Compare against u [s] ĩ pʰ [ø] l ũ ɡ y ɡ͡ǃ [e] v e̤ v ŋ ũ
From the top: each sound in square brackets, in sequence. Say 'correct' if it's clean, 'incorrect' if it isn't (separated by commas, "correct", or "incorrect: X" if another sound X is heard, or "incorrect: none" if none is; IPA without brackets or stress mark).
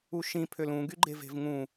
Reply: incorrect: ʃ, correct, correct